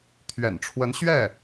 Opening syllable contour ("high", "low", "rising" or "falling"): low